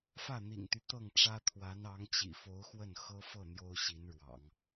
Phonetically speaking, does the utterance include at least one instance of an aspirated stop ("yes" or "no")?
yes